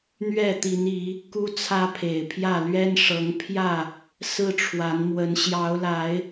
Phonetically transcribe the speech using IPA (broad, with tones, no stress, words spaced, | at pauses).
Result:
n̪ɥɛ˥˨ t̪i˨˦ni˨˦ | ku˦t͡sʰä˦pʰe˨˩ɪ̯pʰjä˥˨ lɥɛ˦nʂɤ˨˦ŋpʰjä˥˨ | sɹ̩˦ʈ͡ʂʰwa˨˦nmwə˨˦n ɕjɑ˨˦ʊ̯la˨˦ɪ̯